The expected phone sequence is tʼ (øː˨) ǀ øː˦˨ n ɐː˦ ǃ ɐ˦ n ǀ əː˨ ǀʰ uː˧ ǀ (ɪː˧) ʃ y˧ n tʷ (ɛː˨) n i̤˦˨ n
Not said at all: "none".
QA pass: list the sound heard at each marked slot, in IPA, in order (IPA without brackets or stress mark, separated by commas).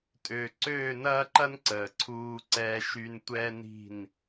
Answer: øː˨, ɛː˧, ɛː˦